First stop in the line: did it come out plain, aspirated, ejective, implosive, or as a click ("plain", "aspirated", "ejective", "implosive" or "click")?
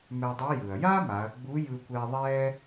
plain